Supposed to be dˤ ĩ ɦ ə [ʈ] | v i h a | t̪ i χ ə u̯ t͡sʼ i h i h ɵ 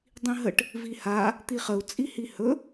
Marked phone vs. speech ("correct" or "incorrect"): correct